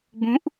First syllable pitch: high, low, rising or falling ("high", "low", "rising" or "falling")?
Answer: rising